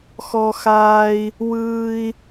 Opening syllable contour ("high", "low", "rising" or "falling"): high